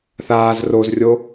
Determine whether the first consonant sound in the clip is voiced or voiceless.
voiceless